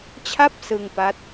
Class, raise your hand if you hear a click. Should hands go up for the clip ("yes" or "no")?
no